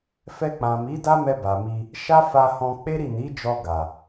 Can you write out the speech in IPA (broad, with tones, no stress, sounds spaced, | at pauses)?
f ɛ˧ k͡p ã˨ m i˨˦ d a˦ m ɛ˧ b a˨ m i˧ | ʃ a˦ f a˧ h ɔ̃˧ k͡p e˦ ɾ i˦˨ n i˨˦ d͡ʒ ɔ˧ ɡ a˨